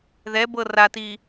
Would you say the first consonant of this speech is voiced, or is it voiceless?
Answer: voiced